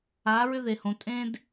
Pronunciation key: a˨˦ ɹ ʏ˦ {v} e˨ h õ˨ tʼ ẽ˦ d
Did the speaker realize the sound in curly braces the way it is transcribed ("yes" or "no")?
no